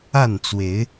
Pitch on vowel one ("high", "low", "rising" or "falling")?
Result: falling